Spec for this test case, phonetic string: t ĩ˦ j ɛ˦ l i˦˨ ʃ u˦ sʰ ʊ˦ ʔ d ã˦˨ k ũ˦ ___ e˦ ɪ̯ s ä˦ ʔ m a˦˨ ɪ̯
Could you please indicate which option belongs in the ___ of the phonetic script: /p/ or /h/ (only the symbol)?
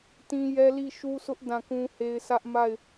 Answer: h